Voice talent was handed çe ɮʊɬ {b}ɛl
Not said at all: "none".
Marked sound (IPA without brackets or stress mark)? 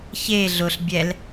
bʲ